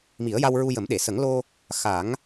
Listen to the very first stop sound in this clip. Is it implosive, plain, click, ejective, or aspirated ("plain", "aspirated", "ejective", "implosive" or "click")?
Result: implosive